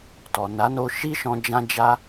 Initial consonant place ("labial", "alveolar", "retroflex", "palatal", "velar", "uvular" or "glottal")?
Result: alveolar